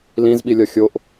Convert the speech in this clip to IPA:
l ĩ z ɓ i lʲ ɒ xʲ o ʔ

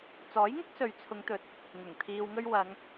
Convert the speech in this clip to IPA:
t͡s ɔː˨˥ j ŋ ʊ˥ k̚ s ɵ˨ ɥ t͡sʰ ʊ˨˧ ŋ t̪ ɵ˨˥ t̚ | ŋ ʊ˨˩ ŋ t̪ʰ iː˧ w ŋ ɵ˥ ɥ w ɐ˨˧ ŋ

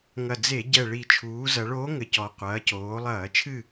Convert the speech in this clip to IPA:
ŋ ɐ˨˩ d͡z e˧˩˧ ɟ ɛ˨˩ ɭ i˨˩ t͡ʃʰ uː˩˧ z ɐ˩˧ ɭ oː˧˥ ŋ ɘ˩˧ c ɔ˩˧ qʷ ɐː˩˧ c oː˩˧ lˠ ɐː˧˩˧ t͡ʃʰ ɨ˥˨

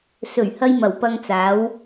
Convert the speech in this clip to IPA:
s ɵ˨˩ ɥ h ɐ˧ j m ɐ˨˩ w p ɐ˧ ŋ t͡s aː˨˥ w

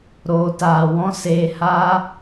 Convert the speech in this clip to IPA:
ɾ oː˨ t aː˨ w ɔ̃˧ s eː˧ h aː˦

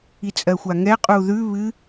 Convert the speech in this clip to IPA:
i t͡sʼ ɜ xʷ a ŋ ɛ qʼ u ð ʉ β ɨ

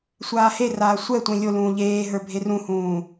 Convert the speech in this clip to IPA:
sʷ aː h e r aː sʷ ɛ tʷ ẽ lʲ o l ũː ʎ eː ɦ ə˞ bʱ e r ũ h ũː

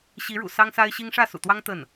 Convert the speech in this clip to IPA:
ɕ i˧˥ ɻ ṵ˨˩ s ɑ˥ ŋ s a˥ ɪ̯ ɕ i˥ ŋ ʂ ä˥˩ s ṵ˨˩ t̪ w ɑ˥ ŋ t̪ ə˥˩ n

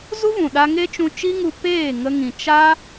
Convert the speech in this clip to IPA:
z u˦ v ũ˨ ɗ a˧ ŋ e˦ t͡ʃ ũ˧ t͡ʃ i˦ ŋ u˧ p eː˦˨ ŋ ə˧ ŋ ĩ˨ t͡ʃ a˦

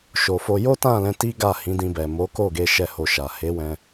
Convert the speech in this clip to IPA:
ʃ o˨ f o˧ j o˦ t ã˦˨ l ɛ̃˧ t i˦ ɡ a˦˨ h ĩ˨˦ d ĩ˧ b ɛ˨ m o˨˦ k o˦˨ ɡ e˧ ʃ ɛ˧ h o˧ ʃ a˨ h e˨˦ w ɛ̃˧

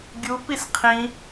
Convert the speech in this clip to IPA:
ɡʲ u p i s qʰ ĩ

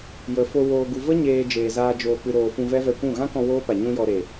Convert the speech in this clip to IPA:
j ə˨ f o˧ w oː˨ ɡ u˨ v ə˦ ɲ eː˧ d͡ʒ eː˨ z aː˧ d͡ʒ oː˨ k͡p ɨ˨ ɾ oː˨ f ũ˧ v ɛ˦ v ɛ˧ kʷ ũ˦˨ ɣ ã˦ k ɔ̃˧ w oː˦ p a˨ ɲ ũ˧ j ɔ˨ ɾ e˨

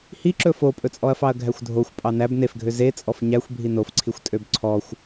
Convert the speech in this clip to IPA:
h i ǁ ɵ f o pʼ ɵ t͡sʼ ɔ ɐ̯ f ɑ ɐ̯ ɡʱ æ xʷ dʱ o xʷ pʼ ɑ n æ b n e f ɡʱ ø z e t͡sʼ ɔ f ɲ æ xʷ bʱ i n o f ǀʰ i xʷ tʼ ø b ǀʰ ɔ xʷ

